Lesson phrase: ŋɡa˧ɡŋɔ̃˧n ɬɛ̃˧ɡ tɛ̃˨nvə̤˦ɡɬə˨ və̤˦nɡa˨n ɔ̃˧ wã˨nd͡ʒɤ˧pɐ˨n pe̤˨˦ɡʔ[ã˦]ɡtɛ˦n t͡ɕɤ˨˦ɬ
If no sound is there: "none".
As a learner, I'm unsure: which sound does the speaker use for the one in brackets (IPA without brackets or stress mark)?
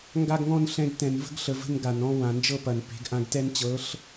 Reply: ã˧